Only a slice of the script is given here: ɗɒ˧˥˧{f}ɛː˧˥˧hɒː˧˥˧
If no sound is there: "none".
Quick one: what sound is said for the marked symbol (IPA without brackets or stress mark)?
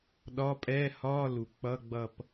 pʼ